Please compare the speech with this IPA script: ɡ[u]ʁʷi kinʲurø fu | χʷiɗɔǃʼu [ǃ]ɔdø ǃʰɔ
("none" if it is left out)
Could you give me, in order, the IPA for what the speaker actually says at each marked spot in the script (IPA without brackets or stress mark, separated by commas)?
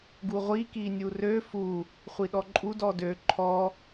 u, d